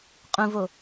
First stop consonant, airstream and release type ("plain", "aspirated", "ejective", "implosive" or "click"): ejective